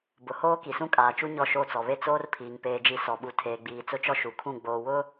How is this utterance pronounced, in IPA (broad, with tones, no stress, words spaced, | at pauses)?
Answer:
bʊ˨hoː˦ ki˨sũ˦kʼaː˨t͡ʃu˦ ɲɔ˦˨ʃo˦˨t͡sɔ˨ βe˦t͡soː˦rpʰiː˨ŋ peː˦d͡ʒi˦ sɔ˨ɓu˨ tʰeː˨ɡ͡biː˨t͡sʊ˦t͡ʃɔ˦ ʃu˨kʰũ˦˨ ɡ͡boː˨wʊ˦